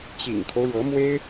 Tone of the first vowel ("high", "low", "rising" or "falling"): low